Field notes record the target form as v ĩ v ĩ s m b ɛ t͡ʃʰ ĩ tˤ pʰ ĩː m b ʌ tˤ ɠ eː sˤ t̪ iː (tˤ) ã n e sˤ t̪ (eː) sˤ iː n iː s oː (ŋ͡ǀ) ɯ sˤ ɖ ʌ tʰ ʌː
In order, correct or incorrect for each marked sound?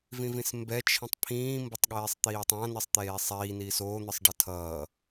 correct, correct, incorrect

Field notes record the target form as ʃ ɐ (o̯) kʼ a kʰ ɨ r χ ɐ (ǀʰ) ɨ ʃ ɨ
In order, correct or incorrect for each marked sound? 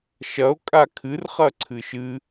correct, correct

